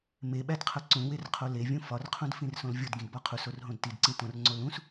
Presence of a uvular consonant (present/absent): present